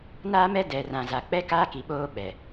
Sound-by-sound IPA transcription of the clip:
naː˦mɛ˦dɛ˨rã˨ za˨k͡pɛ˦kaː˦ ki˨ɓoː˦ɓɛ˨

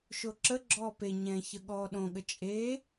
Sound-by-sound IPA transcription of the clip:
ʃoǁə ɡ͡ǁɔːpe ɲɛ̃çə ɠɔːɗõɠə t͡ʃʼe

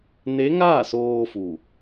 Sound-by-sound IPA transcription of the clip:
ne˧˥ŋaː˥˨soː˧ fu˧˩

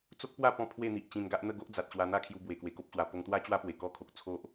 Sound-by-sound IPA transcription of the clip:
t͡so˦k̚pwa˥˧ pɔ̃˥˧pʰwe˥˧n̪i˨ʔ t͡ɕĩ˧nɡa˦ʔ n̪ə˥˧ɡo˦ʔd͡za˨t̚ ɕwa˧n̪a˥˧kʰju˧ bwe˧kwe˧ko˦p̚ɕwa˧ po˧ŋt̪wa˦t͡ɕwa˦pwe˨˩ kɔ˥˧kʰo˨k̚ t͡sʰo˦ʔ

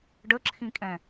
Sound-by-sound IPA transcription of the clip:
ɖəǁʰĩkʼɛ̃

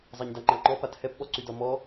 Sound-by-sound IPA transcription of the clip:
zˤaɲdaŋ͡ǃaŋ͡ǃɔ pathɛpɓɔ ǀydɒmɔ

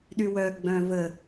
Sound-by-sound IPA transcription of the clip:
ɗywœ ɡ͡bœ̃və

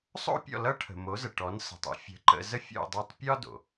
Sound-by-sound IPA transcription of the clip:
sˤo̰˥ pʲɔ̰˥˩lʌ˥ʈʰə̤˩ mo˩˥zə˩ʈɔ˩˥n sə̤˩tˤə̰˥ fʲə̤˩˥ǃə̰˧zə˥ fʲo̰˥˩dˤɤ˥˩tˤ pʲɒ˥do̰˩

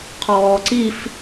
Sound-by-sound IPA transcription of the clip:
qʰɔːǀif

